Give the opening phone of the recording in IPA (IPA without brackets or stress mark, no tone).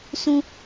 s